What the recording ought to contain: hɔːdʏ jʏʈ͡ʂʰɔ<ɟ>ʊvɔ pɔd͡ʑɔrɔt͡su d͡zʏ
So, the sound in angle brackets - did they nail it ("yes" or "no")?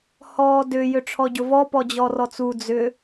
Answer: yes